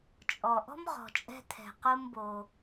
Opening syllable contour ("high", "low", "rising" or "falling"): low